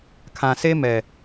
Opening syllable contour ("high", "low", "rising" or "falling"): low